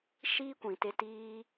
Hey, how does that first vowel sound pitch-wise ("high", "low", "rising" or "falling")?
high